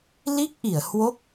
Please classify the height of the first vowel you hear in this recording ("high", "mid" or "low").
high